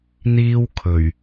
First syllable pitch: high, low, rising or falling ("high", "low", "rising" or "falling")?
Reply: high